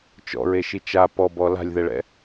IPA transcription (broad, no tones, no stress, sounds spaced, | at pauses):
t͡ʃ ɔ̰ ɹ e ʃ i t͡ʃ a p ɔ b ɔ l a̤ lʲ ð ɛ ɭ ɛ̰